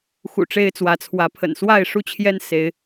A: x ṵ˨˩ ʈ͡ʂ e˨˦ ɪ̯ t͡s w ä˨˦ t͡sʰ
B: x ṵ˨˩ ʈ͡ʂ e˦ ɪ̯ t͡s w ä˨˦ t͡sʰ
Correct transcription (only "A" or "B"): B